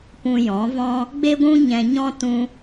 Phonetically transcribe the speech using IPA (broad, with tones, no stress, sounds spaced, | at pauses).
p ũ˧ j ɔ̃˨˦ v ɔ̃˦ | ɡ͡b e˦ ɡʷ ũ˦ ɲ ɛ̃˧ ɲ ɔ̃˦ t ũ˦